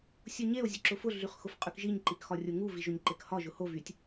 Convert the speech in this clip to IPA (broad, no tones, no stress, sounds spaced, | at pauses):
sʲ u ɲ e o̯ zʲ ʊ ǁ ʊ f ʊ ɮ y χ x ʊ f qʼ y k ʒ i ɲ ǃ i k x ɒ rʲ o ŋ u v i ʒ o ɲ ǃ e k h ɒ ʒ ʊ h o v y tʲ